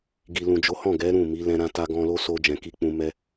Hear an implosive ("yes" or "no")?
no